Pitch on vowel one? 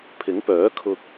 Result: rising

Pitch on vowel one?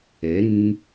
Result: rising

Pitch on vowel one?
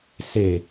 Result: low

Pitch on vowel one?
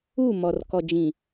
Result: falling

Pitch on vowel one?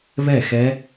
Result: falling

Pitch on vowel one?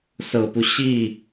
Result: low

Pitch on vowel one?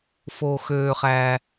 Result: low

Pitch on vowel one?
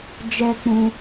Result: high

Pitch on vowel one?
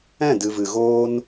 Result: falling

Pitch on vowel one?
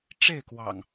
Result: falling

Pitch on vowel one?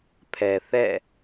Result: low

